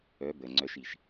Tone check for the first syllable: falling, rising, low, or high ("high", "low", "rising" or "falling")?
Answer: rising